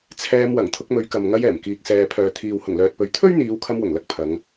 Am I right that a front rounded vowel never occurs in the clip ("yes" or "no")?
no